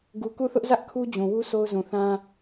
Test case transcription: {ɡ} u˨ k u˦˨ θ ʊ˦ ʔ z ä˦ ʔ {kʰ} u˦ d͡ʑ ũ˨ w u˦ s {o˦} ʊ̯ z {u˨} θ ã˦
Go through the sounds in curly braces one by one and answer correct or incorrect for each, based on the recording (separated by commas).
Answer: correct, correct, correct, incorrect